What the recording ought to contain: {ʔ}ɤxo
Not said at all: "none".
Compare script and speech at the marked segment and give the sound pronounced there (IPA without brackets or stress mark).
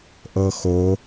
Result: ʔ